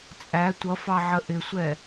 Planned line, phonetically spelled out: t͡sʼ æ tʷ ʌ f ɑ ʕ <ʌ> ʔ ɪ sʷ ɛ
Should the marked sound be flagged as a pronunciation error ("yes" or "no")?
yes